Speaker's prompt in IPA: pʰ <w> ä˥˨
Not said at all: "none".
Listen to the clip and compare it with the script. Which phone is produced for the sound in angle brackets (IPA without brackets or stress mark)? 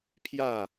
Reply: j